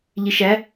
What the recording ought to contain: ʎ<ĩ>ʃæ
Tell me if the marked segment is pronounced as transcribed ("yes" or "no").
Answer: no